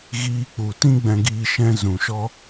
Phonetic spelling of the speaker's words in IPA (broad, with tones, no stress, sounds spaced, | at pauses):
ɣ iː˧ k͡p u˨ t ĩ˦ ɡ͡b ɛ̃˧ ɡ iː˧ ʃ ɛ̃˧ z ũ˨ ʃ ɔ˦